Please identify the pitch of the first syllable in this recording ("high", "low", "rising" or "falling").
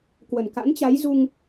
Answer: low